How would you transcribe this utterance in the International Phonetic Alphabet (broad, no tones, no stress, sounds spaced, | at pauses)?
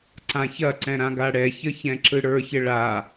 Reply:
ǀ ã ç ɐ ǀ ɛ̃ ɾ ã ɡ a ɽ ɛ ç ə ç ɛ̃ ǁ ɯ ɽ ə˞ ç ə ɭ a